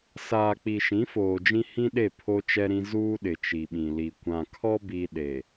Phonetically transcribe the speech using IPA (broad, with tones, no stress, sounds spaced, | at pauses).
s aː˨ k͡p i˨ ʃ ĩ˨˦ f oː˨ d͡ʒ ĩ˦ h ĩ˦ ɗ e˦˨ pʰ o˦ t͡ʃ ɛ˦ ɾ ĩ˦ z uː˦ ɗ ɪ˨ t͡ʃ i˨ ɓ ĩ˨ l i˨ kʷ ã˨ kʰ ɔ˦ b i˦ ɗ e˨